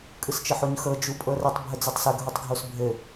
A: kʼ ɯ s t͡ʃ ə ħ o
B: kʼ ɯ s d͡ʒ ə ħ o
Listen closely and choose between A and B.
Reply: A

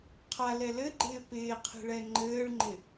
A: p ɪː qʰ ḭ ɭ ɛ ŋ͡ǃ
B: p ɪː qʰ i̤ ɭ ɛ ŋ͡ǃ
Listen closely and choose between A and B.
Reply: B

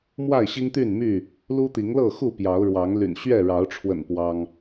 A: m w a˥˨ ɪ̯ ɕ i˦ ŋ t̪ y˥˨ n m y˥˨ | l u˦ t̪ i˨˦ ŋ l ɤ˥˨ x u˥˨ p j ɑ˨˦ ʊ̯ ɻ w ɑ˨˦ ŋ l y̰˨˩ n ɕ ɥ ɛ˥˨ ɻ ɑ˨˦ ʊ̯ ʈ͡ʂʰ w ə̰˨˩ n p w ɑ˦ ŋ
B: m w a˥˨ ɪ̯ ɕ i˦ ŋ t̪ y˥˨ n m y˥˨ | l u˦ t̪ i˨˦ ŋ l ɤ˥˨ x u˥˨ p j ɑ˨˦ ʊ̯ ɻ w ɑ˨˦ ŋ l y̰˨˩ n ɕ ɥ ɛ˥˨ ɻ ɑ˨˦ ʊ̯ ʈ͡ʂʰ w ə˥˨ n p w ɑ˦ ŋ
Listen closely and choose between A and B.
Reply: A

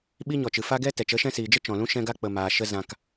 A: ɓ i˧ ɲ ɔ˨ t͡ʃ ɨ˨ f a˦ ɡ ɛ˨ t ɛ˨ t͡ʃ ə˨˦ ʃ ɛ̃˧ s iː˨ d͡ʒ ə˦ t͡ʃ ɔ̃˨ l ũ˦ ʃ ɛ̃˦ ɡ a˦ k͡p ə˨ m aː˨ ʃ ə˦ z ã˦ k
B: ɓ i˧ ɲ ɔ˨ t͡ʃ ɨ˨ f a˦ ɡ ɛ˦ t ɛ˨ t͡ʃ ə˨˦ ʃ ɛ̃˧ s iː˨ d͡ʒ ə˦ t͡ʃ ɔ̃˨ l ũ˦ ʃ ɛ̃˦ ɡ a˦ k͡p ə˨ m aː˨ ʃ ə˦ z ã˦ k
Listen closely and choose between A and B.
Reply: B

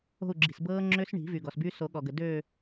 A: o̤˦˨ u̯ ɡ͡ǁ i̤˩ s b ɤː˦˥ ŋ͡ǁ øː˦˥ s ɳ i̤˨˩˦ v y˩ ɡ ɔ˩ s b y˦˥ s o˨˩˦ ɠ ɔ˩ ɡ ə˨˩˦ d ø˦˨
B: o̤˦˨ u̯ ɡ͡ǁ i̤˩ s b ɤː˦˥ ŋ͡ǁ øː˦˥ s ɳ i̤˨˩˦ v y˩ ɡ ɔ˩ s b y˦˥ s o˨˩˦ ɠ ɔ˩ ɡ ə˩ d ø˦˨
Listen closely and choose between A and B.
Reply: B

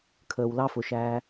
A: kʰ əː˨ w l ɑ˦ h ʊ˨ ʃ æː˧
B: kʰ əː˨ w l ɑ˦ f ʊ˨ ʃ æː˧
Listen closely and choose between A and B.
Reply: B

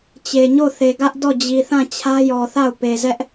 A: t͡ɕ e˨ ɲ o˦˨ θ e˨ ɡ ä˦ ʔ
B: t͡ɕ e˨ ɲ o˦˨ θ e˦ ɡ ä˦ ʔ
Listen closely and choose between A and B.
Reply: A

